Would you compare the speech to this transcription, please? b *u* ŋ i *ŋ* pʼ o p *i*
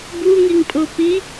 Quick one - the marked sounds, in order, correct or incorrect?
correct, correct, correct

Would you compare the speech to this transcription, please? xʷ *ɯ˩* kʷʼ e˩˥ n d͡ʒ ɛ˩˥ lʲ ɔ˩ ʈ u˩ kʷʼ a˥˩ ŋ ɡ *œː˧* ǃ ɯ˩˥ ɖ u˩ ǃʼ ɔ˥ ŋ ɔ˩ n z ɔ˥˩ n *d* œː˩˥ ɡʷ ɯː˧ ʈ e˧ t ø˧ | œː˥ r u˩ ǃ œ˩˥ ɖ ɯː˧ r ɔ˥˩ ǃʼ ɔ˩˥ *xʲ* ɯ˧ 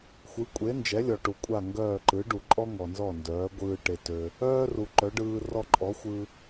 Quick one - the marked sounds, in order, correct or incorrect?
incorrect: ɯ˩˥, incorrect: œː˥˩, correct, incorrect: xʷ

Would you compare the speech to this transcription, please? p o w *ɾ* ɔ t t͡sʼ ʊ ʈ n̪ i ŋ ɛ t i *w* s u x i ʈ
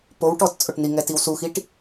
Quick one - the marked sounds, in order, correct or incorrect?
incorrect: ʈ, correct

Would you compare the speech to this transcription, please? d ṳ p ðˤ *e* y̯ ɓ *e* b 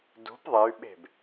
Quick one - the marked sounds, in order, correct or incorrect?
correct, incorrect: e̤

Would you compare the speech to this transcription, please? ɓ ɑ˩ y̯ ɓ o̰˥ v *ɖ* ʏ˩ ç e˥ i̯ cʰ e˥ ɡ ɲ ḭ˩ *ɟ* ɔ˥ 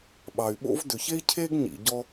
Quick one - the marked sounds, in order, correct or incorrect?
incorrect: d, correct

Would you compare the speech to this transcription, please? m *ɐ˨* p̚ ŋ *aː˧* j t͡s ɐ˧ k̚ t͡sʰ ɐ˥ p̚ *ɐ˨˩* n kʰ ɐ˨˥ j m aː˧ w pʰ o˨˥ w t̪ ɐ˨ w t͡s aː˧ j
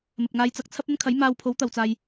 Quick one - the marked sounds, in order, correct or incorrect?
correct, correct, incorrect: ɐ˥

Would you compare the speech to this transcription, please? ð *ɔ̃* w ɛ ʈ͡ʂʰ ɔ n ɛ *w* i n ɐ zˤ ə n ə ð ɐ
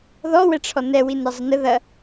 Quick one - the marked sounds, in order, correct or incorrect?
incorrect: ɔ, correct

